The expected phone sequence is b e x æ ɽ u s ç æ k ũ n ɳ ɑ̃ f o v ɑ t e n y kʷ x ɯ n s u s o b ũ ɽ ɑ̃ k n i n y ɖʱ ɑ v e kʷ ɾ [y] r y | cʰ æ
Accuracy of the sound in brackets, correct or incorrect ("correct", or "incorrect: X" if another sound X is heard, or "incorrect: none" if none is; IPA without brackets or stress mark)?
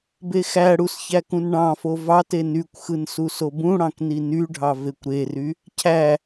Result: incorrect: e